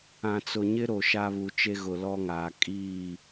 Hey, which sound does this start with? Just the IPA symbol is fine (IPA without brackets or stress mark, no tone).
ã